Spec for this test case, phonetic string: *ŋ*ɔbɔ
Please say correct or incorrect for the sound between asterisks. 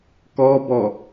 incorrect